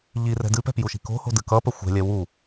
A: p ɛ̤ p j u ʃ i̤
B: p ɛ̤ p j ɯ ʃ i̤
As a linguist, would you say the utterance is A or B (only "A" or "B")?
A